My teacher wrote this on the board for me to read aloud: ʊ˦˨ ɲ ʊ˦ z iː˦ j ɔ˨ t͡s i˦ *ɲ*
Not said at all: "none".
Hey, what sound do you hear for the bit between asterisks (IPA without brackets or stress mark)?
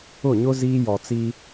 none